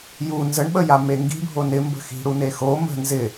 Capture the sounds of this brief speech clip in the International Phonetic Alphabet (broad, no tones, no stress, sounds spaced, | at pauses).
j u n z ə ɳ ɓ ə j a m e ŋ ɡ i̤ bʱ o n ɪ m b ə̤ x i̤ ɽ u n e x o m ə̤ n z ɪ